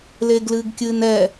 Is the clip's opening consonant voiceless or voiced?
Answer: voiced